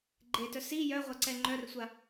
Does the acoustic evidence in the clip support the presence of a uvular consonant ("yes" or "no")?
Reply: yes